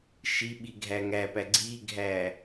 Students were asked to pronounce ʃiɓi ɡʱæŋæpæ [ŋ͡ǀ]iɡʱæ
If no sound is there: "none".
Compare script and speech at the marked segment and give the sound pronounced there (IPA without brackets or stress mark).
ɡ͡ǀ